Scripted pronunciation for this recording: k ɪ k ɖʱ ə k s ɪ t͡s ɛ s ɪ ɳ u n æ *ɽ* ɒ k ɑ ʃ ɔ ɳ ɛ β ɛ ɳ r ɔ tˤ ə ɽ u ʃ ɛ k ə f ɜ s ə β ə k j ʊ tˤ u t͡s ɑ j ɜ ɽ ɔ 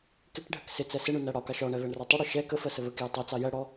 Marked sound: correct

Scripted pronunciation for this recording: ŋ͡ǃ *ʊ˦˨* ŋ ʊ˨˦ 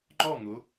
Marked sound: incorrect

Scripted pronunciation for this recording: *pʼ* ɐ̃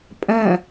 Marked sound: correct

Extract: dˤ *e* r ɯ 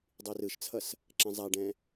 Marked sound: incorrect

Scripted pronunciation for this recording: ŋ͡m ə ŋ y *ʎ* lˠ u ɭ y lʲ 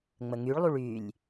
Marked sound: incorrect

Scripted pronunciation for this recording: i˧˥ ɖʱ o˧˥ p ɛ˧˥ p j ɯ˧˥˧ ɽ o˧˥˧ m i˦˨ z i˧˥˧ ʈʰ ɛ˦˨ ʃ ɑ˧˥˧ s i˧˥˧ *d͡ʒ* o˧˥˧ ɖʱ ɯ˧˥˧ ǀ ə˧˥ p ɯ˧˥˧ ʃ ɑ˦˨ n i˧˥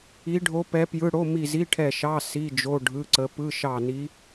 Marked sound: correct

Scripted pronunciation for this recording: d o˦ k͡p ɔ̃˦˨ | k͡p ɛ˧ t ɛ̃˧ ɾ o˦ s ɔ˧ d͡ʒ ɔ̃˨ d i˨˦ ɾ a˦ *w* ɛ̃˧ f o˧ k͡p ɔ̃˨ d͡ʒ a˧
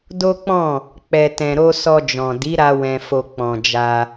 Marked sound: correct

